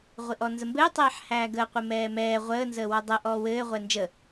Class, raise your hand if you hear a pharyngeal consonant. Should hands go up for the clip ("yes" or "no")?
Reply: yes